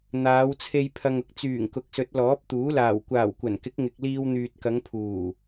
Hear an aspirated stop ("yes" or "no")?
yes